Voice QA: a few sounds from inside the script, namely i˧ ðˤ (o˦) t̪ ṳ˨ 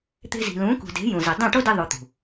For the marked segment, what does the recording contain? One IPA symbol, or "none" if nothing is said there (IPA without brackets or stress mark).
o˧